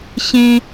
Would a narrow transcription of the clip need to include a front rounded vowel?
no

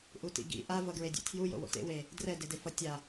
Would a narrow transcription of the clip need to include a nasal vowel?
no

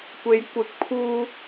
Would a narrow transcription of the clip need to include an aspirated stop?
yes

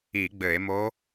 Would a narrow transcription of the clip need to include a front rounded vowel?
no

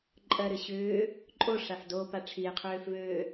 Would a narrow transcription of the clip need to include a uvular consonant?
yes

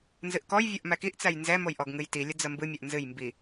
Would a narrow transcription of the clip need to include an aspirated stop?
no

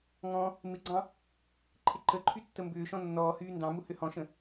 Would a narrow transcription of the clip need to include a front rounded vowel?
yes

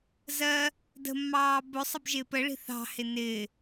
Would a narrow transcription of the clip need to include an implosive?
no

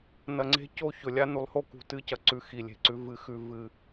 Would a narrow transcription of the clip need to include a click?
yes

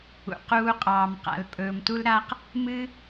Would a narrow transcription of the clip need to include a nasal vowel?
no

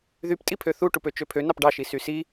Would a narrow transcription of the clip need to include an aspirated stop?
yes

